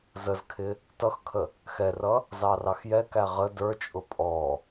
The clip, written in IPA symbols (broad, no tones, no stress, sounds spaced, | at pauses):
z ə z kʰ ɪ | t ʌ x kʰ ə | x ɛ r ʌ | z ɑ r ɑ x j ɛ k æ ʁ ə d ə˞ t͡ʃʼ ʊ pʼ ɔ